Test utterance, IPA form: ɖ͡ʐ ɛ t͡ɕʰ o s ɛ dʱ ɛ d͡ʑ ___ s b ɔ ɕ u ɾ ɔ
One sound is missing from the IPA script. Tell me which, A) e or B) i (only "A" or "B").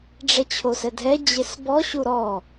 A